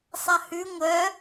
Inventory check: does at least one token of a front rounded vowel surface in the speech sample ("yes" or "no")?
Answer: yes